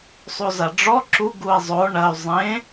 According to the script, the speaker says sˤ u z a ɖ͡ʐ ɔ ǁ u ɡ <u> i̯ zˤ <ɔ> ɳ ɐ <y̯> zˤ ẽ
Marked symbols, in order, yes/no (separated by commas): yes, no, yes